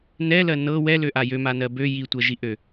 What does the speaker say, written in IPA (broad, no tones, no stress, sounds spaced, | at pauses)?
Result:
n ɛ l ɜ n ɤ w ɛ l ø ʔ a j ø m a n ɜ b ø j i tʷ ɜ ʒ i ʔ ø